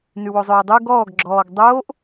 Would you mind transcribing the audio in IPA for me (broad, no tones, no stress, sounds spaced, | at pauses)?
n ʉ w o zˤ øː dˤ ʉ ɡ ɔː ɡ ɡ͡ǁ ɔː ɡ dˤ oː ʔ